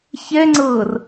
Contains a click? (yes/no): yes